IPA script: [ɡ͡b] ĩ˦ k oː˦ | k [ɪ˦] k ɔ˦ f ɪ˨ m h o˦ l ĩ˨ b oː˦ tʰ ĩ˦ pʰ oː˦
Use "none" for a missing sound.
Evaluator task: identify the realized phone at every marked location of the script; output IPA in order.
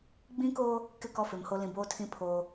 ɡ͡b, ɪ˦˨

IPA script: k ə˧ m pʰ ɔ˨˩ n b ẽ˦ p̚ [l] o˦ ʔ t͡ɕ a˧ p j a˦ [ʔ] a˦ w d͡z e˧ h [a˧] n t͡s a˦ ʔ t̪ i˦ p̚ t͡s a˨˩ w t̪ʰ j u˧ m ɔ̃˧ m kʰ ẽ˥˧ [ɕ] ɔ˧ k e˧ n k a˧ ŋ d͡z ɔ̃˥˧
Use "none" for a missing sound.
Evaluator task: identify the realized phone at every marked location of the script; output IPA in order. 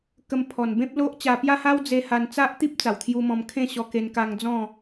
l, h, a˧, ɕ

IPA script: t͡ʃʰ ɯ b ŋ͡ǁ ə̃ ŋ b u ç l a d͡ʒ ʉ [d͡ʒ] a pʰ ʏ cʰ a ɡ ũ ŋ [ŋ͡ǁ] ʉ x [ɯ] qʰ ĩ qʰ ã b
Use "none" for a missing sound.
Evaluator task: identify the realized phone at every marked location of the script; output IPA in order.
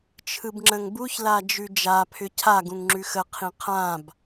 d͡ʒ, ŋ͡ǁ, ə

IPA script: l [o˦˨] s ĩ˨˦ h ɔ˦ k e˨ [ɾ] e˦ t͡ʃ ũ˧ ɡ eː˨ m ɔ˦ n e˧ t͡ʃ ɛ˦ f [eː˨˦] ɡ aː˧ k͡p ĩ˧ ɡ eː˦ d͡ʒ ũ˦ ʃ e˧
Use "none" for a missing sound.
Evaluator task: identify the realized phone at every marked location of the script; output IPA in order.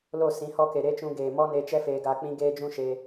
o˦˨, ɾ, eː˧

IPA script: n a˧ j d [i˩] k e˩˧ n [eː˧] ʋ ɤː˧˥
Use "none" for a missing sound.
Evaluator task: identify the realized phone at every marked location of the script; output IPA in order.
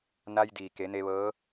iː˩, e˧

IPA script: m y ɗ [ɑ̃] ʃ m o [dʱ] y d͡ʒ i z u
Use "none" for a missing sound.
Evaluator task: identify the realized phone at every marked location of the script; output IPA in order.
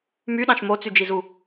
ɑ̃, t͡s

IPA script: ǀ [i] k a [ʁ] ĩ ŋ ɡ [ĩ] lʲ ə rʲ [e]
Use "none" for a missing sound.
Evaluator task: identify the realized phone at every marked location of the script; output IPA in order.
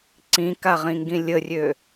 ĩ, ʁ, ĩ, ø

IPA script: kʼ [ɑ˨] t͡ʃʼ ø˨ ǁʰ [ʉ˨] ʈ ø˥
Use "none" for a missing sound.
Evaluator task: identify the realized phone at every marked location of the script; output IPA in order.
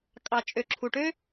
ɑ˨, u˨

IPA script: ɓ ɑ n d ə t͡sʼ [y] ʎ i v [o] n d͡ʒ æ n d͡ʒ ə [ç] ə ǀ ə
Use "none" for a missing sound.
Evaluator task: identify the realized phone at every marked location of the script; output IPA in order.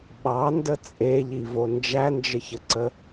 e, o, ç

